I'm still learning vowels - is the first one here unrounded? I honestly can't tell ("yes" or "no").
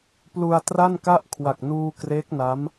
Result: no